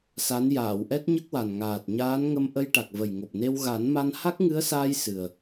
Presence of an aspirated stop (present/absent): absent